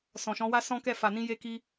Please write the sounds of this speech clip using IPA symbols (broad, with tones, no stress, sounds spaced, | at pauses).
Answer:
s ɔ̃˨ ʃ ɔ̃˨˦ w a˦ s ɔ̃˦ k ɛ˦˨ f a˨ n ĩ˧ j e˧ k i˧